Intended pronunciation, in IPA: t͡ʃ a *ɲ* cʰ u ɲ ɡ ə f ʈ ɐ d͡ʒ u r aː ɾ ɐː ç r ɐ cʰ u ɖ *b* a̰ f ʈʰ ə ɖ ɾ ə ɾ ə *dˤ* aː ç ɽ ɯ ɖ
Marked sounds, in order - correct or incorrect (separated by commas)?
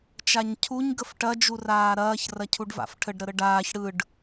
correct, incorrect, incorrect